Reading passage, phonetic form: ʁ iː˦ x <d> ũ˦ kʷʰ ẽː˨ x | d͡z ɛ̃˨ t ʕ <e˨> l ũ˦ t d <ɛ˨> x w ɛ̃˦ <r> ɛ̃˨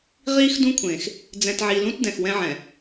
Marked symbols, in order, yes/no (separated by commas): yes, no, no, no